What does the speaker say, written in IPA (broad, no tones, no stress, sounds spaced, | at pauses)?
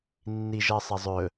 nː i ʒ ɜ sˤ ɐ zˤ ɵ